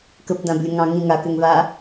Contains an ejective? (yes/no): no